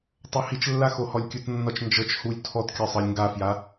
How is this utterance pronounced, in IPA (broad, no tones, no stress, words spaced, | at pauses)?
tˤohit͡ʃlːa xohɔlʲkʲutnːɒt͡ʃ nd͡ʒɤt͡ʃ hulʲ tʰɔtkʲɒ sˤɤlʲŋɡafja